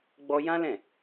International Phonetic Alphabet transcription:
ɡ͡b ɔ˦ j ã˦ l ɛ̃˦˨

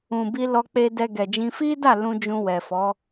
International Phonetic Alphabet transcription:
ũ˨ b i˧ l ɔ˧ k͡p e˧ d ɛ˧ ɡ ɛ˨ d͡ʒ ĩ˧ f i˦ d a˦˨ l ũ˧ d͡ʒ ũ˧ w ɛ˨ f ɔ˨˦

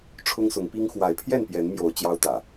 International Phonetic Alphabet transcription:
ʈ͡ʂʰ ʊ˦ ŋ s ʊ˨˦ ŋ p i˦ ŋ x w a˨˦ ɪ̯ pʰ j ɛ˥˨ n p j ɛ˨˦ n m j o˨˦ ʊ̯ t͡ɕ j ɑ˦ ʊ̯ t̪ ä̰˨˩

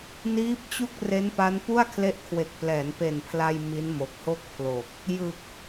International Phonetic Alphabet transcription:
n iː˦˥ p̚ t͡ɕ u˥˩ k̚ r e˦˥ n p a˦˥ n p u˥˩ a̯ kʰ l e˦˥ ʔ kʰ w e˨˩ k̚ p l ɛː˩˦ n p e˨˩ n pʰ l a˧ j m i˦˥ n m o˨˩ k̚ h o˥˩ k̚ pʰ l o˨˩ k̚ | j ɯ˨˩ k̚

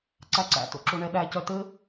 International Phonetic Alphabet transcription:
ǀ æ ǀ æ̰ t o̰ ǁ o ɳ ɛ ɗ æ c œ t ɘ

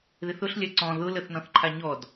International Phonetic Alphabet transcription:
ð ɪ θ ʊ ɬ lʲ a ǀ ɔ̃ ð ʊ l ə θ n ɔ̃ θ ǃʰ a ɲ ɔ d

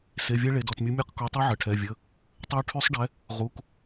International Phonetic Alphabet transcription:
s e˩˧˩ vʲ ɛ˦˥ ɭ e˩˧˩ d ɔ˩˧˩ t mʲ u˨˥ mʲ ɛ˦˥ q k o˨˥ tˤ u˦˥ ʕ ə˩˧˩ ʈʰ ɛ˩˧˩ vʲ ə˩˧˩ | tˤ ə˦˥ u̯ ʈʰ y˦˥ sˤ ɖ ɛ˨˥ | ʁ u˩˧˩ k

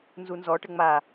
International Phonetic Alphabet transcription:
n z u n z ɔ ʈ ɘ ŋ͡m a

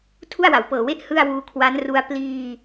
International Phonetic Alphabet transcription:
tʰ u˥˩ a̯ w a˩˦ w p ɤː˨˩ w e˥˩ ʔ h ɯ˥˩ a̯ w uː˧ kʰ w a˦˥ n r u˦˥ a̯ p l iː˧

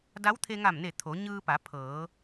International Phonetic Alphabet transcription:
d a˧˥ w t̪ʰ e˧ ŋ a˧˩ m n e˧˩ t̪ʰ o˩˧ ɲ ɯː˧ p a˩˧ pʰ ɤː˩˧

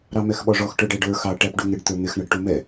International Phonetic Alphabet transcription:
ɾ ɑ m ɛ x ɓ ɔ ʐ ɔ x ʈ ə˞ ɖ æ ɖ ə˞ x ɑ ʈ æ p ɖ u ŋ ɪ ɖ t̪ ə˞ n̪ ɪ x ɳ ʌ ɖ ʈ u m ɛ

